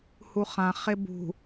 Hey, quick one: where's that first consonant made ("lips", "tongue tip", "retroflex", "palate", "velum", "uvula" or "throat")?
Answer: throat